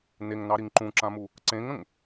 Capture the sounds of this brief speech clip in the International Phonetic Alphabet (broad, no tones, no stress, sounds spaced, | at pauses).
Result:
n e ŋ n ɑ ɾ i ŋ ǃ ũ ǁ ã m u | ǀ ẽ ŋ ə̃ ŋ